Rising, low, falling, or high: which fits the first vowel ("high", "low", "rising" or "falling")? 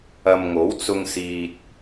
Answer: low